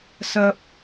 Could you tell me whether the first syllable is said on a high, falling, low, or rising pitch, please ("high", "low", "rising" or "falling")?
high